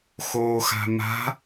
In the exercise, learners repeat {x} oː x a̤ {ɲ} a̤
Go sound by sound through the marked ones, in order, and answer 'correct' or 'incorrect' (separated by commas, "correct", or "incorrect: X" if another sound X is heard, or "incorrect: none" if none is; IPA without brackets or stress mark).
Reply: correct, incorrect: m